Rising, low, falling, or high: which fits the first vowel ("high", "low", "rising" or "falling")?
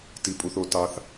low